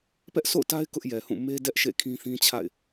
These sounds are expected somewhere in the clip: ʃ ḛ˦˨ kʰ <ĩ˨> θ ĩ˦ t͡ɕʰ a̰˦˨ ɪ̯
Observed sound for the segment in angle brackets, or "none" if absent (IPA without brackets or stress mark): ĩ˦